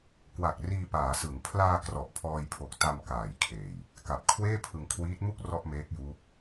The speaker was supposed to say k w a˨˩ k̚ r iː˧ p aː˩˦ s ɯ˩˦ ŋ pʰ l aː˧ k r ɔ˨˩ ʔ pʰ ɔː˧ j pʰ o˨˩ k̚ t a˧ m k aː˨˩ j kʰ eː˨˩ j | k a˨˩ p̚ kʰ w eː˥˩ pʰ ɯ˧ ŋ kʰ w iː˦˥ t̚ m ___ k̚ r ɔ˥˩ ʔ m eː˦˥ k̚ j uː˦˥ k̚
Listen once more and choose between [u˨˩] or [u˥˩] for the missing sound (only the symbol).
u˥˩